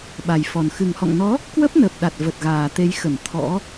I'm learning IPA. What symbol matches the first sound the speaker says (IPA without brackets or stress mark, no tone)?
ɓ